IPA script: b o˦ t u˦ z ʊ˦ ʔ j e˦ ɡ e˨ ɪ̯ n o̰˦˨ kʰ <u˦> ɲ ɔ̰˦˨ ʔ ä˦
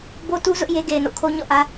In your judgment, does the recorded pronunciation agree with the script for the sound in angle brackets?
no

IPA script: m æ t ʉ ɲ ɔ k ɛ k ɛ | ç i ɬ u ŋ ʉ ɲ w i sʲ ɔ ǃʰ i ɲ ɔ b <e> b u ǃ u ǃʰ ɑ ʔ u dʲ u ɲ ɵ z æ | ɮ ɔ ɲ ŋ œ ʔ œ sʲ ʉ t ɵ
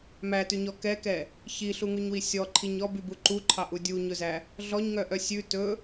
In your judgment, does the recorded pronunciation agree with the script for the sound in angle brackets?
no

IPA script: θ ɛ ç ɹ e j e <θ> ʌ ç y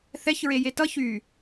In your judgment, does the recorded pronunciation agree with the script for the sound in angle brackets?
no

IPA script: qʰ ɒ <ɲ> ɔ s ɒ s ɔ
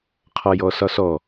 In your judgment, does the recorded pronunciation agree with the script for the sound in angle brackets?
no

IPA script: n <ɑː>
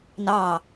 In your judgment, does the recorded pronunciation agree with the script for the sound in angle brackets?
yes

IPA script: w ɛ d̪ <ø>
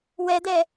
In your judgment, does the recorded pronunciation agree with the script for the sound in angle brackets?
no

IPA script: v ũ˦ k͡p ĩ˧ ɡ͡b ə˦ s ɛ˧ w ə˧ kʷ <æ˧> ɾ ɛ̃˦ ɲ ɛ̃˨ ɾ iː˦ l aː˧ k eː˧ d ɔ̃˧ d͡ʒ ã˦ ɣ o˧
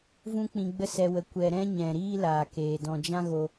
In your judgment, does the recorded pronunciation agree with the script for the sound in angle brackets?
no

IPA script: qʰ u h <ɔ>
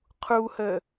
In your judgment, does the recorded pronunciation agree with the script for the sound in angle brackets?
no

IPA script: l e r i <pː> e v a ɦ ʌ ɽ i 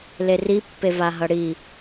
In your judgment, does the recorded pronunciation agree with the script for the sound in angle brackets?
yes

